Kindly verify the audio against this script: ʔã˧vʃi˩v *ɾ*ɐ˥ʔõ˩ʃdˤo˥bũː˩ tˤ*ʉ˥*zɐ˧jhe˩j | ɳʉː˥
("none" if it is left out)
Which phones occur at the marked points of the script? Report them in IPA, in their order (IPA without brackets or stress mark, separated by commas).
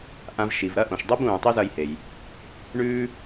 ɾ, ʉ˥